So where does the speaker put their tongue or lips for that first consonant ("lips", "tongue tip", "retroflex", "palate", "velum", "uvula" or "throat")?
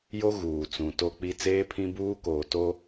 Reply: palate